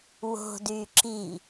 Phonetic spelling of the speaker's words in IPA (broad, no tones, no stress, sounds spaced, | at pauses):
w o̤ d y ǁ i